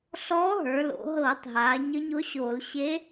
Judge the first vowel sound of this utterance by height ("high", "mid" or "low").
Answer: mid